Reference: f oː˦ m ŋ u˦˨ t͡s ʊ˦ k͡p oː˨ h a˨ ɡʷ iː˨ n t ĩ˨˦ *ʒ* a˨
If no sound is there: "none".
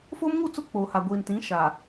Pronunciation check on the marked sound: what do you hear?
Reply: ʃ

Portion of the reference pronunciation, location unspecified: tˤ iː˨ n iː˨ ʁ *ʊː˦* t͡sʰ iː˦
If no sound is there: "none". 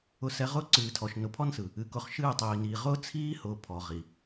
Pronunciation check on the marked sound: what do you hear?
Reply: ʊː˦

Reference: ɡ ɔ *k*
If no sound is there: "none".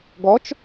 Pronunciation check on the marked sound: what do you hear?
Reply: t͡ʃ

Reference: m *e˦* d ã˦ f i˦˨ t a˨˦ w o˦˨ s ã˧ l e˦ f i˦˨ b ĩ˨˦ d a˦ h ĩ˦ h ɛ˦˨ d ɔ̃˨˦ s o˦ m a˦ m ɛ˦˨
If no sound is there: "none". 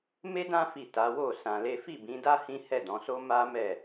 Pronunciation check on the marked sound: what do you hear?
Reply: e˦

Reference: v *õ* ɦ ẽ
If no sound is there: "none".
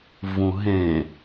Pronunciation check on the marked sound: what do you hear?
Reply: ũ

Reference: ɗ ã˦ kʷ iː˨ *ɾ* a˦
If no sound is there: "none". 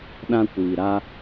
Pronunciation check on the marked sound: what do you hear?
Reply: ɾ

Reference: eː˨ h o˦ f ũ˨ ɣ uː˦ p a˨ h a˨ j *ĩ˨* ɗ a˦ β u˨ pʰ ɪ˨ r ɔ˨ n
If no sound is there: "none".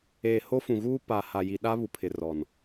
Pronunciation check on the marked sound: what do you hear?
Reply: i˨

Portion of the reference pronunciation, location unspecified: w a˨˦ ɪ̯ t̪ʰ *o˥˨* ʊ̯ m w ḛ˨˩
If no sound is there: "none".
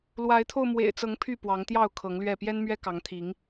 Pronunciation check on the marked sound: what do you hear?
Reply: o˧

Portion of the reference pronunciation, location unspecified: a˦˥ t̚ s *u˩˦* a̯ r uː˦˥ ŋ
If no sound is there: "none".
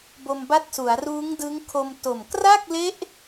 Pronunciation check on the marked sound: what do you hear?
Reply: u˩˦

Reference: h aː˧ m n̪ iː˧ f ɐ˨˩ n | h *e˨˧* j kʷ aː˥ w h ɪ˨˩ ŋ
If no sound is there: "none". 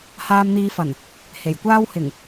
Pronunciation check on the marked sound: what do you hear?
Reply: e˨˩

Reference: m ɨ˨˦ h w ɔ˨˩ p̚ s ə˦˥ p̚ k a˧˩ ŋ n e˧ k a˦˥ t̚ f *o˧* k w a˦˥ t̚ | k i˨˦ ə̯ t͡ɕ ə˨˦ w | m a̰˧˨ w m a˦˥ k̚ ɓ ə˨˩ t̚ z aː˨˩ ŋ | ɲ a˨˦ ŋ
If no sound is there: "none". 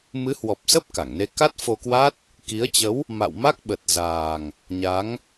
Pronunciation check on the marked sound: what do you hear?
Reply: o˧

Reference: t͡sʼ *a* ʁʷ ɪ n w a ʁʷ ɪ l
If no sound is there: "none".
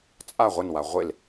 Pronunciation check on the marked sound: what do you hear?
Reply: a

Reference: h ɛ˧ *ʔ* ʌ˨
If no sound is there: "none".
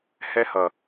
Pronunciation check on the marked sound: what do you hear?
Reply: h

